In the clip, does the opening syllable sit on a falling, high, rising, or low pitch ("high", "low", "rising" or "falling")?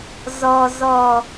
low